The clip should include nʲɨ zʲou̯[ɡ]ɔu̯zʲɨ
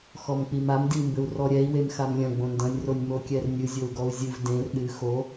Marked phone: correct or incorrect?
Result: correct